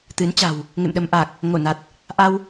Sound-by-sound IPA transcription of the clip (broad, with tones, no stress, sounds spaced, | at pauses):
t̪ ɨ˨˦ n t͡ɕ a̤˨˩ w | ŋ ḛ˧˨ m ɗ ə˧ m ʔ aː˨˩ k̚ | ŋ o˧˩ n a˨˩ t̚ | ʔ a˧ w